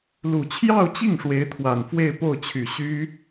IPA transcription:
l u˨˩ t͡ɕʰ j ɑ˥˧ ʊ̯ t͡ɕ i˥˩ ŋ ʂ w e˧˥ ɪ̯ t̪ʰ w a˨˩ n f w e˥˧ ɪ̯ p o˥˩ ʊ̯ t͡ɕʰ y˨˩ ɕ y˥

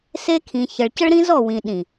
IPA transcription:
s e˦ kʰ ĩ˨ ç ə˨ ɭ c ə˦ ɭ ɾ ĩ˦ z ɔ˦˨ w ĩ˨ ɗ ĩ˨

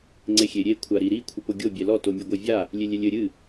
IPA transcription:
ŋ͡ǀ e xʲ e ɾʲ e kʷʰ a ɾ i ɾ i kʷʰ ɨ p o ɡʲ o bʲ ɛ l ɔ t o mʲ e ɡʷ ɛ vʲ a | lʲ e lʲ ɛ lʲ ɘ ɾʲ ɨ

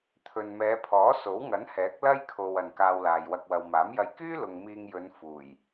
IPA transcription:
t̪ʰ ɵ˨ n m ɛː˨˧ pʰ ɔː˨˥ s o˨˥ w ŋ ɐ˨˥ n h ɛː˨˥ k̚ l ɐ˥ j kʰ o˨ w ɐ˨ n k aː˧ w l aː˨ j w ɐ˧ k̚ w ɐ˨ w m aː˨˥ m j ɐ˧ j k yː˥ l ʊ˨ ŋ m iː˧ ŋ j ɵ˨˧ n f uː˨˩ j

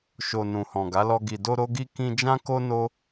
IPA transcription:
ʃ o˨ n ũ˨ h ɔ̃˨ ɡ a˨˦ l ɔ˧ ɡ i˨ d o˧ ɾ o˧ ɡ i˧ k ĩ˧ d͡ʒ ã˦ k o˦ n o˦

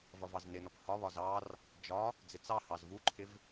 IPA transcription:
v ʌ v ɑ z n ɪ n ɔ p h ɒ β ɒ z ɑ r | d͡ʒ ɒ | d͡z ɪ t͡s ɑ h ɑ z v u ǃʰ ɪ v

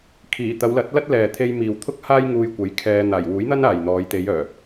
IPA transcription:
kʰ iː˨˩ t̪ ɐ˨˧ w l ɐ˨˥ t̚ l ɐ˥ t̚ l ɛː˨ t̪ʰ e˧ j m iː˨ w t̪ʰ ʊ˥ k̚ h aː˥ j ŋ uː˧ j kʷ ɐ˨˥ j kʰ ɛː˧ n̪ aː˨˩ j w uː˨˥ j n̪ ɐ˥ n aː˨ j n̪ ɔː˨˧ j t̪ e˨˧ j œː˨˩

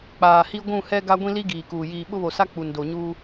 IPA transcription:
k͡p aː˨ h i˦ ɡʷ ũ˦˨ h ɛ˦ ɡ a˦ ɡʷ ĩ˦ l i˦ ɡ iː˨ k uː˨ j iː˨ ɓ ʊ˦ β o˨ s a˦ k͡p u˨ n d o˨ ɲ uː˦

